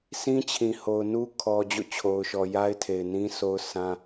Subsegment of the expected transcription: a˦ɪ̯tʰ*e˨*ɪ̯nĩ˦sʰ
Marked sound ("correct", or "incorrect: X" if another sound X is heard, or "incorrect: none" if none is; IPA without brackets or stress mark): correct